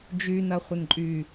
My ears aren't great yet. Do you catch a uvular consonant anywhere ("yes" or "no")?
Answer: yes